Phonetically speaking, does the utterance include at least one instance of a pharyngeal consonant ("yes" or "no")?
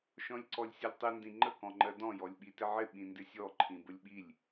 yes